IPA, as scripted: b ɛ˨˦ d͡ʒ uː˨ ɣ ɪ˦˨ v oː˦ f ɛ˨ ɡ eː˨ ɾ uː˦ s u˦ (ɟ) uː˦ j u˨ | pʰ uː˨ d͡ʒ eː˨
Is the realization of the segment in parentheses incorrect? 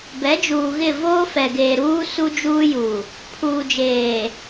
yes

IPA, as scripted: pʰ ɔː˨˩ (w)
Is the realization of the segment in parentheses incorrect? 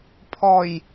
yes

